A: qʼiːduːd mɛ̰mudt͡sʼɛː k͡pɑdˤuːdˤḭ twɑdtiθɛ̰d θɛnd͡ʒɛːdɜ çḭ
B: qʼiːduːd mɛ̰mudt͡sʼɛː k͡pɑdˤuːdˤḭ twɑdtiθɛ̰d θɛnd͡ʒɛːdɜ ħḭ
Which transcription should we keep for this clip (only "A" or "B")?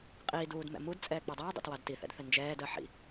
B